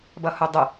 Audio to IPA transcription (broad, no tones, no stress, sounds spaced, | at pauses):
b ʌ h ʊ dˤ ʊ